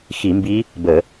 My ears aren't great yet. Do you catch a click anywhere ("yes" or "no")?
no